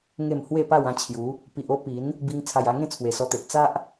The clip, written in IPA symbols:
ŋ e˥˧ m h w e˥˧ p a˥˧ w ã˥˧ t͡ɕʰ j u˨˦ | p i˨ ʔ o˦ p i˨˦ n | b i˧ ŋ t͡sʰ a˨˩ j a˧ ŋ ẽ˥˧ t͡sʰ w e˨˩ s ɔ˧ t̪ e˨ ʔ t͡s a˦ ʔ

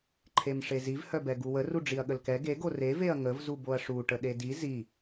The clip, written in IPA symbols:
ǃʰ e m ʂ e z i v h œ b ɛ ɡ u w ə r u ɖ͡ʐ i ɐ̯ ɠ ə l k ɛ ɡ e ɡ o r e v e ɐ̯ ŋ ə v z u b o ɐ̯ ʂ u ʈ ə ɗ e d i z i

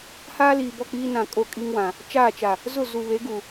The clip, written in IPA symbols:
h aː˦ l iː˨ b ɔ˦˨ k͡p iː˦ n ã˨ kʼ o˦˨ kʼ i˦ ŋ w ã˨ | t͡ʃ aː˦˨ t͡ʃ a˨ | z ʊ˦˨ z u˨ β e˨˦ ɡ u˨

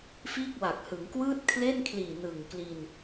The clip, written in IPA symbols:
f iː˥˩ k̚ w a˨˩ k̚ h ɯ˩˦ ŋ k w ɯː˥˩ t̚ kʰ l e˥˩ n kʰ l iː˨˩ n ɯ˨˩ ŋ k l i˧ n

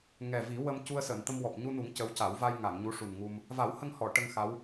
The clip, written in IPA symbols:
ŋ ɛ˨˩ v i˨˩˦ w ə˧ m c u˧ ə̯ s əː˨˩˨ n t̪ ə˧ m w ɔ˨˩ p̚ ɲ u˧ n u˨˩˦ ŋ c ə˧˥ w c a˨˩˦ w v a˧ j ŋ a˨˩˨ ŋ ɲ u˧˥ ʂ u˨˩ n ŋ u˧ m | v a˨˩˦ w h ə˧ ŋ h ɔ˨˩˨ ʈ ə˧ ŋ x a˧˥ w

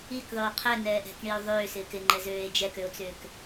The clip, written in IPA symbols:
i k ðˤ øː qʰ ɛ n ɛː ʔ ɛ̤ k ɳ i o̯ ðˤ øː s ɪː k ɪ ŋ͡ǃ ɛ z øː e̯ d͡ʒ ɛ k ø o̯ t͡s ʏː k

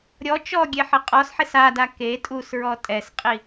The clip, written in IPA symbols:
ɾʲ ɔ t͡ʃ ɔ ɡʲ e ħ ɪ qʼ ɔ s ħ e s a d a k e tʼ u s ɹ ɔ tʼ ɛ s qʼ i

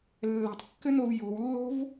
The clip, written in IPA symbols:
lː ɛ̤ tˤ kː ɘ n o v j o̤ w lː o̤ v

